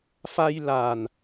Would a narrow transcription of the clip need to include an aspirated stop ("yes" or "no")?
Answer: no